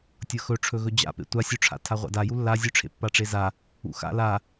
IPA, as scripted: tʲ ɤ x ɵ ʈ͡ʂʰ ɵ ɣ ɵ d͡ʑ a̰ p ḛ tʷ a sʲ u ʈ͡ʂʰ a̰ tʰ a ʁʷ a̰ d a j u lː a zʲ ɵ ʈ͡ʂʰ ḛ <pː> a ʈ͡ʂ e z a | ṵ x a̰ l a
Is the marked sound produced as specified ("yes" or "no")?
yes